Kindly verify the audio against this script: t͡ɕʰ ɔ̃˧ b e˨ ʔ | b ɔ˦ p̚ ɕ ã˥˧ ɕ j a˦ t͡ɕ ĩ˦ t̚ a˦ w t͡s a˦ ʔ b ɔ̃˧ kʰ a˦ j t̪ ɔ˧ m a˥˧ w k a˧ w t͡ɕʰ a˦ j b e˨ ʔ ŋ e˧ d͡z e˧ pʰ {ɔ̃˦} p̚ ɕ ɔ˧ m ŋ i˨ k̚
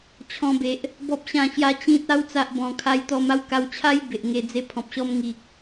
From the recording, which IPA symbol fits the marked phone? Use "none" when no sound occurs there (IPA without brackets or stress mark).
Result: ɔ̃˨